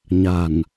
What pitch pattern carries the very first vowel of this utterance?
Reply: low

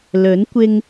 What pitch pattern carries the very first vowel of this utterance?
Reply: rising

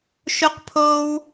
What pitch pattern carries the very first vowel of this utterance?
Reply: high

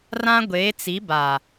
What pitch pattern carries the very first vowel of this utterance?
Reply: high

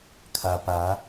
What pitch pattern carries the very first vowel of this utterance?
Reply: low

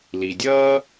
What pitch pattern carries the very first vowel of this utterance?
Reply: low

